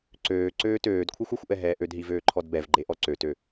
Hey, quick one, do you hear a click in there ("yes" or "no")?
yes